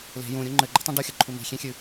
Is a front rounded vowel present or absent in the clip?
absent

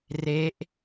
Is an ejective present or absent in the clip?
absent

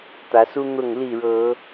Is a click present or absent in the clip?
absent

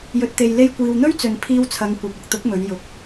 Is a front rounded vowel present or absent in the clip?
absent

